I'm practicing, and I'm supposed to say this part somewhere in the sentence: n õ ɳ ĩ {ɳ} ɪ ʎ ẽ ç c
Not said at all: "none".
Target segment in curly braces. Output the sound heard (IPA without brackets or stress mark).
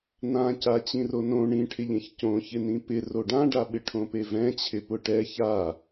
ʈʰ